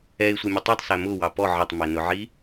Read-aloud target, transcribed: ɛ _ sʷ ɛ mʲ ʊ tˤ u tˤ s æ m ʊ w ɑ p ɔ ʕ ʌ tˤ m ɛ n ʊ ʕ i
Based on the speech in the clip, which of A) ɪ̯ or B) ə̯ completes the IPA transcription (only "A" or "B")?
A